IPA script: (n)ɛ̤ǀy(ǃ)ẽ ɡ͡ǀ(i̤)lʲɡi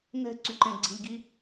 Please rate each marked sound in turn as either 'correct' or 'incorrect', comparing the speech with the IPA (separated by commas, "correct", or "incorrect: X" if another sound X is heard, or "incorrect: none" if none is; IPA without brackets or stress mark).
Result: correct, correct, correct